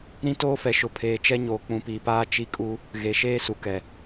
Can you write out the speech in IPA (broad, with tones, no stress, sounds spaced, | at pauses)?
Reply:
ɾ ĩ˦ t oː˦ f ɛ˨ ʃ ʊ˨ pʰ eː˨ t͡ʃ ɛ˦ ɲ oː˨ k͡p ũ˨ p iː˨ p aː˦ t͡ʃ i˦ kʼ u˦ | ɣ e˨ ʃ eː˦ s u˨ k ɛ˨